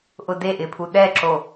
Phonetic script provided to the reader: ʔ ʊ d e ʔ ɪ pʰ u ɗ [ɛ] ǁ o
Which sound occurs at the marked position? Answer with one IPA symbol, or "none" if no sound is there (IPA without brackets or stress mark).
ɛ